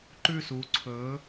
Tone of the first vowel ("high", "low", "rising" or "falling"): falling